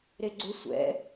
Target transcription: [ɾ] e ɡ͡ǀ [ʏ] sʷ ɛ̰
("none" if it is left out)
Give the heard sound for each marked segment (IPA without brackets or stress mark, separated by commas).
ɾ, ʏ